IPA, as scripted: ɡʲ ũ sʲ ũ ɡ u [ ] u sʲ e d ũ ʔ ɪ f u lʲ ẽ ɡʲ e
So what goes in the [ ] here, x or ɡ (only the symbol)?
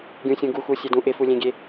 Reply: x